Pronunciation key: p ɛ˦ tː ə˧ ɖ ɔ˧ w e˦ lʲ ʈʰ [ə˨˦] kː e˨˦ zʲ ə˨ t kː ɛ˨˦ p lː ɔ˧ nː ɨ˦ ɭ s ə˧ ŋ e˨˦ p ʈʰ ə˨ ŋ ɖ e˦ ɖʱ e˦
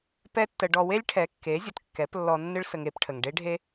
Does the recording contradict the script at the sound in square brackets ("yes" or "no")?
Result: yes